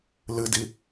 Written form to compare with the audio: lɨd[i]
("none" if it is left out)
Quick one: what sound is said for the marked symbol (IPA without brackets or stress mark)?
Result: i